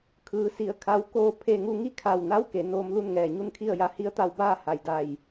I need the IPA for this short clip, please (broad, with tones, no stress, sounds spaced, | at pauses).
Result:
kʰ ɯː˩˧ s i˩˧ ə̯ kʰ a˧˥ w k oː˥˨ pʰ e˥˨ ŋ u˧ ŋ i˥˨ kʰ a˧˩ w n a˧˥ w k e˩˧ n oː˧ m l u˥˨ n ŋ ɛː˧˩ ɲ u˥˨ n kʰ i˥˨ ə̯ j a˧˥ h i˧˥ ə̯ t̪ a˧ w b aː˥˨ h a˩ j d a˧˩ j